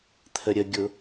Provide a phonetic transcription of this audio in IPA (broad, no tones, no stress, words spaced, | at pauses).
t̪ʰəɾʲəɡʲʊ